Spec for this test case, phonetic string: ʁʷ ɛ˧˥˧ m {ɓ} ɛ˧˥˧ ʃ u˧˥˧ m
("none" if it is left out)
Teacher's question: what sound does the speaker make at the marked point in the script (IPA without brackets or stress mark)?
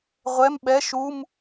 ɓ